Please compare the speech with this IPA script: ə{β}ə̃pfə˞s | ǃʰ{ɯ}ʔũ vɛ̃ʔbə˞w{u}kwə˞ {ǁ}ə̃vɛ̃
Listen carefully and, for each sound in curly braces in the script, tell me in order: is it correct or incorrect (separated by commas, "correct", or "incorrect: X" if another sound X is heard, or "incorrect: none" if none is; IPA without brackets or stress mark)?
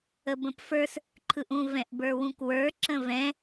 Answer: incorrect: b, correct, incorrect: ũ, correct